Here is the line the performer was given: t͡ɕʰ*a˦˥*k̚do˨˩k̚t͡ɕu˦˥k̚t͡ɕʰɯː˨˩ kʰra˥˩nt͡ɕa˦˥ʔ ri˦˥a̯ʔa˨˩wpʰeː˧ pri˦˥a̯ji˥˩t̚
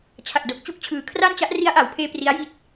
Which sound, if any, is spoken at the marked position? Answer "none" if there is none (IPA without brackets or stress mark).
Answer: a˨˩